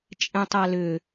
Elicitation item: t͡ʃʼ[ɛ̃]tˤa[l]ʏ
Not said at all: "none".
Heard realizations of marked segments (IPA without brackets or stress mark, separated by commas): ɛ̃, l